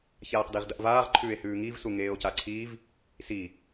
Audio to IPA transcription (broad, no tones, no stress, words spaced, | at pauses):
çaːqdiʁdɐʔvaːʁ ǃʰʉːe̯hʉːŋiv suŋeːo̯caǀʰiːv | si